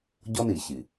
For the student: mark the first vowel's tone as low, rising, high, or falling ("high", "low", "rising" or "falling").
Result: high